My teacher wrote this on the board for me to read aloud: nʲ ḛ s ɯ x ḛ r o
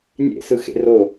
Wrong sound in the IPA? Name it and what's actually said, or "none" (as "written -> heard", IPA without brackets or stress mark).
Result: none